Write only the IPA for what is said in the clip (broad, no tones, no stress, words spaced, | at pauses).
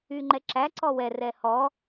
yŋ͡ǃɛǁæ ǀɔwɛ rɛhɔ